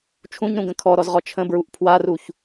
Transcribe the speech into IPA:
t͡ʃʰ ũ ɲ ɾ ũ ɡ ə̃ kʰ ɔ ɾ ɔ z ʁ ɔ t͡ʃʰ ə̃ b ɹ u ʔ pʰ w a r u ç

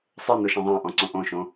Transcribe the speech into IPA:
sˤ ə˞ n o ʃ ã ðˤ ã ʔ ɔ̃ ǀ õ ʔ õ ʃ õ

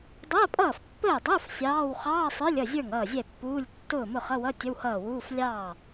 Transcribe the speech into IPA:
dˤ əː˧˥˧ pʼ ʌː˥˩ f pː əː˥˩ dˤ ʊː˧˥˧ f sʲ ɑː˧˥˧ w χ ɑː˧˥˧ sˤ ə˞˧˥˧ lʲ ʌ˥˩ zʲ ə˞˥˩ ŋ ʌː˥˩ zʲ ɛ˥˩ pː uː˧˥˧ lʲ tː ʊː˥˩ m ʊ˥˩ χ ʌ˧˥˧ w ʌ˧˥˧ tʲ ə˧˥˧ w h ʌː˥˩ w uː˧˥˧ f lʲ ɑː˥˩

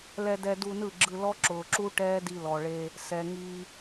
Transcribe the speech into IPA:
l ɛ˧ d ɛ˧ d u˧ n ɯ˦˨ ɡ͡ǁ ɯ˧ l ɔ˦ ǁ ʊː˨ ǁ u˦ ʈ ɛː˦ d i˧ l ɔ˨ ɭ eː˧ | s ɛ˨ ŋ iː˧

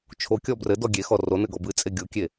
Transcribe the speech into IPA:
t͡ʃʰ o kʲ ɔ b r ɘ d ɔ ɡʲ e x ɔ r o n ɘ ɡ ɔ b ɨ t͡sʼ e ɡʲ o kʲ e

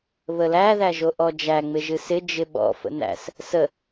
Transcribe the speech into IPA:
β ə l æ ð æ ʒ o ʔ ɔ d͡ʒ æ ŋ͡m ɪ ʒ ɨ s ɪ d͡ʒ ɪ ɓ ɔ̰ f ə̰ n æ̰ s | s ə

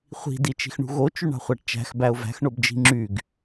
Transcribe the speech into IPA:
χʷ i̤ d i t͡ʃ i̤ x ɳ ṳ ɣ o t͡ʃ y ɳ ɑ̤ χʷ æ ʈ t͡ʃ æ̤ x b æ ʊ̯ v æ̤ x ɳ o b d͡ʒ i̤ ŋ͡ǁ y ɡ

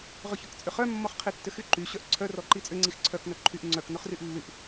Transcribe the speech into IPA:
ʁ ʏ ç ʏ k t͡sʼ ʏ χ œ mː ɔ χ qʰ i tː ʏ x y ǃ y ɕ œ ʔ ǀʰ œ r ɔ ǃ i t͡sʼ ʏ ŋ͡ǀ i x ǀʰ œ k n œ ǃʰ y ʔ ŋ͡ǀ œ k n ʊ χ r y ʔ lː y ʔ

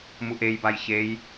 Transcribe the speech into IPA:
m u ʔ e j b a j ç e j

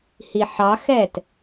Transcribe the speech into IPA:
h i ħ ɑ x ɛ t

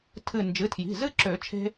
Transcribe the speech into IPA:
tʰ ɨ˧˩ n d͡ʒ ɨ˩˧˩ tʰ j i̤˩˧˩ z ɨ˦ ǁ ø˨˩˦ t͡ʃʰ e̤˦

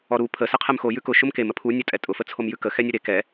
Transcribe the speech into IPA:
ɔ ɾ u pʰ ə s ɘ qʰ ɛ m x o j ʉ k ʊ ʃ ʊ m k e m ə pʰ u nʲ ɔ tʼ ɛ tʼ ʊ f ə t͡sʰ o m j ʉ k ə x ɛ nʲ ɘ ɾ e k ɛ

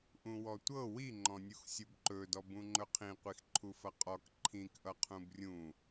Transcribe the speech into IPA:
ʔ ũ w ɔ tʷ ɤ w i ŋ͡ǃ ɔ̃ nʲ u x sʲ u b ǃ ɵ d ɔ b ũ ŋ͡ǃ ɵ qʰ ĩ qʷ i x ǃʰ u f ʌ qʼ ɔ k ǃʰ ĩ k ʔ ʌ qʰ ũ b rʲ ũ

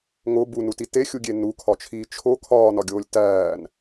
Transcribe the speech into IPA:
ŋ o b u n u t i t e xʲ u ɡʲ e n u kʰ ɒ t͡ʃʰ iː t͡ʃʰ o kʰ ɒː n ɒ ɡʲ oː lʲ t æː n

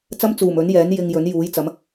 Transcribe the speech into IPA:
t͡s ɐ˥ m t͡s uː˨˩ m ɵ˨˥ n j ɛː˨˥ n j ɪ˧ ŋ j ɵ˨˥ n j uː˨˥ j t͡s ɐ˨˥ m

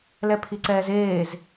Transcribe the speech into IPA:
l ɛ pʰ i ǀ ɛː z eː z

